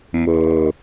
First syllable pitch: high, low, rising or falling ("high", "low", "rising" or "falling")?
low